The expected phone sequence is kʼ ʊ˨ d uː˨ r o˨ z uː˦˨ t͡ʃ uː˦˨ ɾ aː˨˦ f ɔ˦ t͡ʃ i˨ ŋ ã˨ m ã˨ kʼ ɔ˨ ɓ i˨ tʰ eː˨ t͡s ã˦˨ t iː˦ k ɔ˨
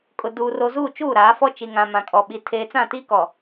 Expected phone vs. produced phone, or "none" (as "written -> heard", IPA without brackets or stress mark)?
none